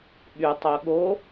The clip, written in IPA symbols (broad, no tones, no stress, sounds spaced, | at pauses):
ɓ y tˤ o ɠ o